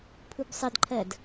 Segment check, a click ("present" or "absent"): present